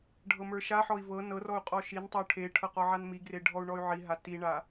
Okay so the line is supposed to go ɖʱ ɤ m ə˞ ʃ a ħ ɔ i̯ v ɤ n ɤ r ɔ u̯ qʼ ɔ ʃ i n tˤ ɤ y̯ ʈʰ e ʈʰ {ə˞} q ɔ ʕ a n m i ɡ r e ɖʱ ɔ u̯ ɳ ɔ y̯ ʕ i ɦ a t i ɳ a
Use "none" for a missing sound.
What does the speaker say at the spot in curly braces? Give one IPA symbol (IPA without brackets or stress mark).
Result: ɤ